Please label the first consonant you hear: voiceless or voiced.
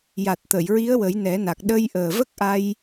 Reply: voiced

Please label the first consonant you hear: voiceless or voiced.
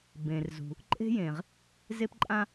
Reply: voiced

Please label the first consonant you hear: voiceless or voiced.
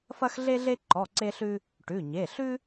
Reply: voiceless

